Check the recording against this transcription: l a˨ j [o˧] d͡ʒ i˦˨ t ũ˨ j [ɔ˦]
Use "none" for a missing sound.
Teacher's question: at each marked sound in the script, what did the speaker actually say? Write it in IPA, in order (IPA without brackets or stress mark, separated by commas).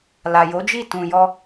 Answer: o˨˦, ɔ˧